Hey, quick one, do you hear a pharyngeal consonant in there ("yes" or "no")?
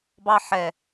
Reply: yes